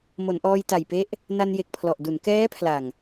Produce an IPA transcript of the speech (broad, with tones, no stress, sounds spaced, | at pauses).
m o˩˦ n ʔ ɔː˧ j t a˨˩ j p e˦˥ ʔ | n a˧ n j e˨˩ k̚ pʰ l ɔ˨˩ ʔ d u˩˦ n k ɛː˦˥ pʰ l a˨˩ ŋ